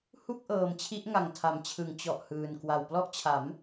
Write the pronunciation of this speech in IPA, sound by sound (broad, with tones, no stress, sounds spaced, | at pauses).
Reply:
h u˥˩ k̚ ʔ ɤː˨˩ m t͡ɕʰ i˦˥ ʔ ŋ a˨˩ ŋ tʰ a˩˦ m t͡ɕʰ ɯ˩˦ ŋ t͡ɕ ɔ˨˩ ʔ h ɯː˨˩ n k w a˨˩ w p l ɔ˥˩ ʔ t͡ɕʰ a˩˦ m